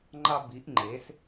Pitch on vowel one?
high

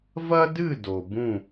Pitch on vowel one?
high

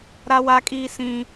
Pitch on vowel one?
high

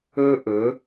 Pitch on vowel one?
high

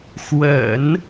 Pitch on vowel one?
low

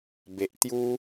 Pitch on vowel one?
low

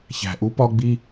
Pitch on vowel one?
low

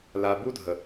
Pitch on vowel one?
low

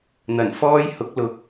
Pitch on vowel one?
low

